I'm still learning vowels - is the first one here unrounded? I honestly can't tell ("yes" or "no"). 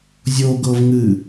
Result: no